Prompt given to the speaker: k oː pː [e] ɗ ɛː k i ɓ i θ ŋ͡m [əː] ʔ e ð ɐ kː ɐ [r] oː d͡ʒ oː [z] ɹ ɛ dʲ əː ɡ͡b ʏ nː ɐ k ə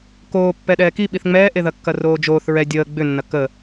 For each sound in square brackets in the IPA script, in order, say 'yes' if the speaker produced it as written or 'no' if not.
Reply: no, no, yes, no

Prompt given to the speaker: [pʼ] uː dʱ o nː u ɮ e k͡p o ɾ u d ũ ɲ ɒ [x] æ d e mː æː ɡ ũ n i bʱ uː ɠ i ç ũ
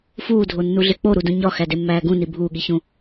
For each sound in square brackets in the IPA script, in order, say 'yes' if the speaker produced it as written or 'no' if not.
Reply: no, yes

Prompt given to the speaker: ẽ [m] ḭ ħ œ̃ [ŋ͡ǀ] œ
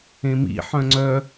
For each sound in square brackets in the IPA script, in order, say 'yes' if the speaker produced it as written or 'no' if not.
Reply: yes, yes

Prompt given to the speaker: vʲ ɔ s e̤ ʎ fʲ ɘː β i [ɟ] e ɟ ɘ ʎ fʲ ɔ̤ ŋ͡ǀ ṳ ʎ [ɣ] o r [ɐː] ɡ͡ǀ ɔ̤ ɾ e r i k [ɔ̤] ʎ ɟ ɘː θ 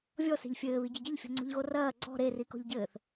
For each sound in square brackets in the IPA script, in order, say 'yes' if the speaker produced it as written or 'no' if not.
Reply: yes, yes, yes, yes

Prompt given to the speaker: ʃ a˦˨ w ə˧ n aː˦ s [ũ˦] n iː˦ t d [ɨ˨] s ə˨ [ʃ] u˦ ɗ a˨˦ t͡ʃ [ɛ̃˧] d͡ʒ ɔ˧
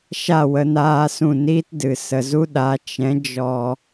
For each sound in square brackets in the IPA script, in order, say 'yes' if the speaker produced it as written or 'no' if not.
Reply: no, yes, no, no

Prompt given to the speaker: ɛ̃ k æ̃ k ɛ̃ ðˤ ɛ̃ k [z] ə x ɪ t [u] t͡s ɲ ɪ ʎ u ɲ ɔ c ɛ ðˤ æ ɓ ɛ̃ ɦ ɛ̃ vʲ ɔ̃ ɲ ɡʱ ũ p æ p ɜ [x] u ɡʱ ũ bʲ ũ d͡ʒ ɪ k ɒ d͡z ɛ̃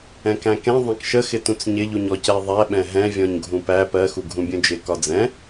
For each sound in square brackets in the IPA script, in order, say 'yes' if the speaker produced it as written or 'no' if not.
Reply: no, no, yes

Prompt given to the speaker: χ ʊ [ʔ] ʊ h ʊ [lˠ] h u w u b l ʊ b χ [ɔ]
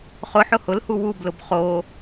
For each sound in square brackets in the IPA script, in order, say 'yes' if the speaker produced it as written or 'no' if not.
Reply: no, no, no

